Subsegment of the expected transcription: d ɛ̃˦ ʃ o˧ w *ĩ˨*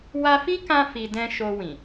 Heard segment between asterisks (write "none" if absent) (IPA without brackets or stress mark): ĩ˨